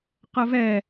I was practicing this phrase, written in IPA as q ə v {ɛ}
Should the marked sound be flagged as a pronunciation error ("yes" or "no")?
no